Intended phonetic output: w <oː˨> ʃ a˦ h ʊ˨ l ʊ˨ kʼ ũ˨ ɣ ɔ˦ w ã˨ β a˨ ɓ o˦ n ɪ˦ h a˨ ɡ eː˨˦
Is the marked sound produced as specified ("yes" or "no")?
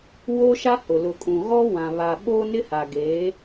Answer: no